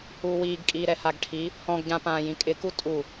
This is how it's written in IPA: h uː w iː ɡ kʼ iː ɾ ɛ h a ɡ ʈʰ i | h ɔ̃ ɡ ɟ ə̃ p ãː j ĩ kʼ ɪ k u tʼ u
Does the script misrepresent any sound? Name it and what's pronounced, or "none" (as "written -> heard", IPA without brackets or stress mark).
ə̃ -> ã